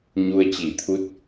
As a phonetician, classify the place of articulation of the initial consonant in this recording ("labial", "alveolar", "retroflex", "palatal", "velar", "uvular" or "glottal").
palatal